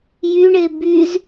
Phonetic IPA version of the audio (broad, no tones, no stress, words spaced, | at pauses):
jyɳe byz